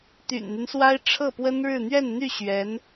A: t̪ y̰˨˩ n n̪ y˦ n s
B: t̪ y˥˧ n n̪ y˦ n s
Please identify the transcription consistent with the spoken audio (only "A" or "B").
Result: A